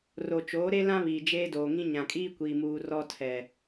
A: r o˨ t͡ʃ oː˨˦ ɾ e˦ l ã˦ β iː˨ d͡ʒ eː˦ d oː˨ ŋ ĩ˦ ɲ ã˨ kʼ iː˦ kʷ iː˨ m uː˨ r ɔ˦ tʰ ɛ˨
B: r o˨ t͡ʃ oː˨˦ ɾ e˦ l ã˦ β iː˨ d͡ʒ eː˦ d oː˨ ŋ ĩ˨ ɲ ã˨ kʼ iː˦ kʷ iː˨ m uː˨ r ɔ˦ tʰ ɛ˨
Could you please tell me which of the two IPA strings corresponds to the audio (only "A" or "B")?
A